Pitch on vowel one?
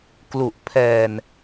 low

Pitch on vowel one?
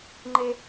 high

